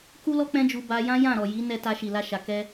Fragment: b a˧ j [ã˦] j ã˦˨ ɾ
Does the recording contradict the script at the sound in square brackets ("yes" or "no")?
no